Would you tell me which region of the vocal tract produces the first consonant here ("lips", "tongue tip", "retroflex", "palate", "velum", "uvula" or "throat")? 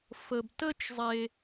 lips